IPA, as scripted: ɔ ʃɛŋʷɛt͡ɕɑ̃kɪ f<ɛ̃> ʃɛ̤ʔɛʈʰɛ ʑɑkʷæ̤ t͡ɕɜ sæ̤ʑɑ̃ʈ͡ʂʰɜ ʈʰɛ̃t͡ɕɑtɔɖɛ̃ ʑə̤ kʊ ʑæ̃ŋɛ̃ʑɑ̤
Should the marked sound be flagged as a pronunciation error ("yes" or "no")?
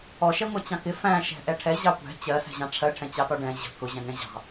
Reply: yes